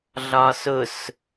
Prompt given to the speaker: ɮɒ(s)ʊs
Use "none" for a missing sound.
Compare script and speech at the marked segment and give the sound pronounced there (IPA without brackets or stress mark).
s